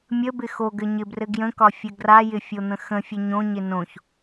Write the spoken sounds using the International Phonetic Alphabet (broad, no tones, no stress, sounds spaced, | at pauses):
mʲ ə b ɪ x o ɡ ɘ ɲ ɪ b r ɘ ɡ j ə̃ k ɒ fʲ ɘ ɡ r a j ɪ fʲ o n̪ ə̃ x ə̃ fʲ ə ɲ õ ɲ ɪ n õ ç